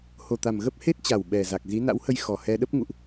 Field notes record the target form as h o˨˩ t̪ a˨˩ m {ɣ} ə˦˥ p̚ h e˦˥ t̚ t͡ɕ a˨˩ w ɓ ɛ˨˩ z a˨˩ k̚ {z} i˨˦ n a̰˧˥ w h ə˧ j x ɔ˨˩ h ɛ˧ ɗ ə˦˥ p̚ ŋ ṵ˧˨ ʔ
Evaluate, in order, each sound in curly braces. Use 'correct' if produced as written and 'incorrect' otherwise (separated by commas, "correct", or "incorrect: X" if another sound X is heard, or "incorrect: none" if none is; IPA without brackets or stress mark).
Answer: correct, correct